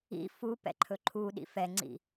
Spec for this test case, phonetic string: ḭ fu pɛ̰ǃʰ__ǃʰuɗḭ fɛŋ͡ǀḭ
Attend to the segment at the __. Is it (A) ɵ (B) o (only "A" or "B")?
A